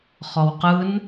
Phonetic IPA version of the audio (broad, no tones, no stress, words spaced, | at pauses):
χɔwqɯn